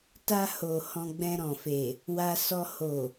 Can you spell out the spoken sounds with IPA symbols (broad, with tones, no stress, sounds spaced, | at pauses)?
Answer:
t a˧ h o˨ h ɔ̃˧ ɡ͡b ɛ̃˧ ɾ ɔ̃˨ f e˨ | w a˧ s ɔ˧ h o˨